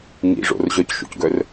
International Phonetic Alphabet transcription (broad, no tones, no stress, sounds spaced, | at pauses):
ŋ ḭ ʐ o̰ r ʑ œ c ʃ o̰ c ɡ œ r